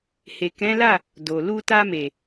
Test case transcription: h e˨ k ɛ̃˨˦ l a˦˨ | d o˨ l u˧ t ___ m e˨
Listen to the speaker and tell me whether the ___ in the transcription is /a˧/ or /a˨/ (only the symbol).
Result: a˧